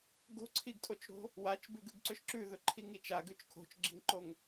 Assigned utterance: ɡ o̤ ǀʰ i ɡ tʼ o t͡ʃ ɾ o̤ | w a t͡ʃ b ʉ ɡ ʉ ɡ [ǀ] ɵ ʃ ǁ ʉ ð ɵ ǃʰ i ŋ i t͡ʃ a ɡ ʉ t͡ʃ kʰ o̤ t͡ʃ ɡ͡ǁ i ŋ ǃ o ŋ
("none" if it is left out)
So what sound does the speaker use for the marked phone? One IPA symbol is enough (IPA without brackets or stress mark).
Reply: ǀ